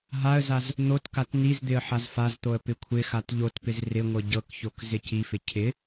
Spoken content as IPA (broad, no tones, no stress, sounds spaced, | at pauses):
ɦ a ə̯ z a z | n̪ o t k a t n i z d̪ ɪ ə̯ ħ a z f a z t̪ o ə̯ p ɪ kʷʰ ɪ x a t ʎ o t p ɪ z r ɪ ŋʷ ɤ ɟ ɤ k ç o k z ɪ c i f ɪ cʰ ɪ